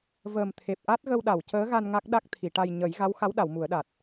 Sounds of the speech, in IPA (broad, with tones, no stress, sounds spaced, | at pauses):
v əː˨˩ m t̪ʰ e˨˩ p̚ ʔ a˦˥ t̚ ɣ ə˧ w ɗ a˨˩˨ w c əː˧˥ ɣ a˧ n ŋ a˦˥ k̚ ɗ a˦˥ k̚ t̪ʰ i˨˩˨ ʈ a˧ j ɲ ə˨˩˦ j ɣ a˧˥ w x a˧˥ w ɗ a˨˩˨ w m u˨˩˦ ə̯ ɗ a˨˩ t̚